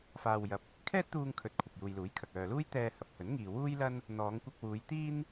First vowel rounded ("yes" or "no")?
no